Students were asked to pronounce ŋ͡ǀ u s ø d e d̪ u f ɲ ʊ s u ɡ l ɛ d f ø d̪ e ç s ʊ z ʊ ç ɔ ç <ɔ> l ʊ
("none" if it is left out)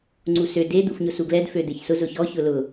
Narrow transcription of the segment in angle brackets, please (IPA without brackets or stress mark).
ʊ